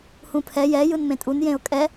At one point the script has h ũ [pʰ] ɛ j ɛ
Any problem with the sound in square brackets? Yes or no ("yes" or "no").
no